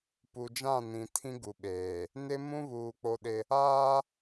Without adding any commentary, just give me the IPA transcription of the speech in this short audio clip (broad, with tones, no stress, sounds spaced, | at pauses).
p u˨ d͡ʒ ã˦˨ n ĩ˨ tʰ ĩ˦ ɡ u˨ ɓ eː˨ | n ɪ˦ m ũ˦ β uː˨ k͡p o˦ ɗ ɪ˦ | aː˦